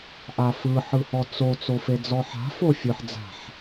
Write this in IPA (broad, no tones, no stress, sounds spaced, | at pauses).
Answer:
ʔ a f ɯ ħ ɯ h ɔ t͡s o t͡s o f e d͡z ɔ ħ a̤ f o fʲ ɯ ħ d͡z a̤ ħ